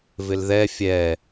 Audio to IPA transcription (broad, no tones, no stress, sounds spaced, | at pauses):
v ɪ l ð ɛ fʲ ɛ